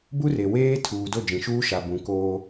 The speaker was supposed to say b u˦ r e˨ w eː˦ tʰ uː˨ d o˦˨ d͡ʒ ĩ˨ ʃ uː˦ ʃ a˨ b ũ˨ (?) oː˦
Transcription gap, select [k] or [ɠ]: k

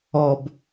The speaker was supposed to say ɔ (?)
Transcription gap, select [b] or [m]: b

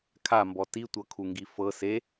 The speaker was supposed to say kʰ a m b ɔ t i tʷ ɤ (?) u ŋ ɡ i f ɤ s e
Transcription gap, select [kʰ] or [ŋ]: kʰ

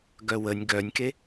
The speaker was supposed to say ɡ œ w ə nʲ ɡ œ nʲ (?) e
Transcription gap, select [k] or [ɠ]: k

